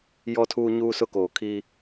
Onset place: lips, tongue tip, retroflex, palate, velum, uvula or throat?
palate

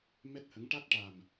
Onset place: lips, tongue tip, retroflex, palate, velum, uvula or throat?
lips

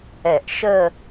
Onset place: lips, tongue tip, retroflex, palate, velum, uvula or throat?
throat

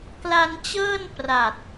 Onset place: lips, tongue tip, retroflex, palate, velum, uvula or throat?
velum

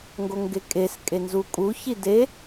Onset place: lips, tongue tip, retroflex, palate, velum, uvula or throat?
velum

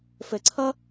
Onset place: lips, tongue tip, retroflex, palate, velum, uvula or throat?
lips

